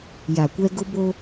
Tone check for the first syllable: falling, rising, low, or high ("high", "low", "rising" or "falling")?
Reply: low